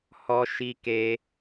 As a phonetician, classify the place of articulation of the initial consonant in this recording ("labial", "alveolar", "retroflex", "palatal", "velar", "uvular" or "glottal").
glottal